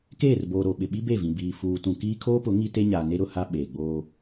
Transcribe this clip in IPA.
keː˦˨rboː˨ ɾo˨ɓɪ˨ ɓi˦be˦˨vĩ˨ biː˨ fuː˨tũ˨ kiː˦ kʰoː˦pʊ˨˦ ŋi˦ te˦ɲaː˨ ne˦ɾʊ˨ha˦ ɓeː˨ɡ͡boː˦

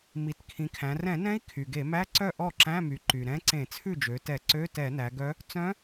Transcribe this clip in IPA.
mi˩˧tkʰĩ˩˧kʰæ̃˩˧ rɛ̃˧˩˧nɛ̃˧˥i̯ kʰy˩ɡe˧˩˧mæ˧˥˧ǀœ˥˩ ʔɔ˥˩ǁæ̃˧˥˧my˩˧ǃy˩ ɾɛ̃˧˥ǀẽ˧˩˧t͡sʰʉ˥˩d͡ʒø˩˧ tɛ˧˩˧ǀø˧˥˧ tɛ˧˩˧næ˩˧ɡœ˧˥ | t͡sœ̃˧˥

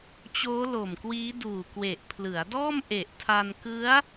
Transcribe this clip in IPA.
t͡ɕoː˦˥lo˨˩mkwiː˦˥ duː˨˩kwe˨˩ʔ pʰlɯ˩˦a̯dɔː˥˩m ʔe˨˩ʔtʰa˧n kɯ˦˥a̯

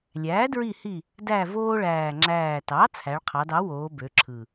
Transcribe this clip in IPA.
lʲæː˩˥dɹi˦˨hi˦˨ | dæ˦˨voː˦ɭæː˨˩ ŋ͡ǁæː˨˩tɑ˩˥ t͡sʰæ˩˧ɭqʰɑ˩˧dɑ˩˥woː˩˧ bø˩˧ǁʰɯ˨˩

